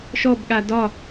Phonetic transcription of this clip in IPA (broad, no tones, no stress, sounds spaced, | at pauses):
ʃ ɔ b ɠ a d ɒ